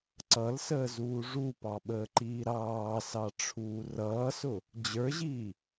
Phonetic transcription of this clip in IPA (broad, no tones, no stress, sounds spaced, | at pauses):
ǀ ʌ l s əː z uː ʐ u p ɑ ɓ əː ǃ iː ɾ ɑː s ɑ ʈ͡ʂʰ uː r ʌː s ʊ | d͡ʑ ə˞ ʑ iː